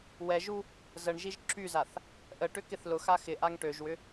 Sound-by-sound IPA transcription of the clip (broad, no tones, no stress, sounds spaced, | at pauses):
w ɛ ʒ u | z ə ɳ ʒ i ʒ ǁ y z a θ | ʔ ə ʈ ʏ k ɪ θ l ʊ x a x ɪ ʔ a ŋ ʈ ø ʒ w ʏ